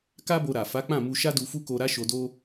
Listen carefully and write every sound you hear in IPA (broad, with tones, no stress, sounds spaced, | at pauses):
k a˦ b o˧ ɾ a˨ f a˨˦ k͡p ã˦˨ m u˧ ʃ a˦ d u˧ f u˦ k o˧ ɾ a˦ ʃ o˧ d o˦